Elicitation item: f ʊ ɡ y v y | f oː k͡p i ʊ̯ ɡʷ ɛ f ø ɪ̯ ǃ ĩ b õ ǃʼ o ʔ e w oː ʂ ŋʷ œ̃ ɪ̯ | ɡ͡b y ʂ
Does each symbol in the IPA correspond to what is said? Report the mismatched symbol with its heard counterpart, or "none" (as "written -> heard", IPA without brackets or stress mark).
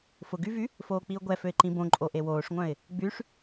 none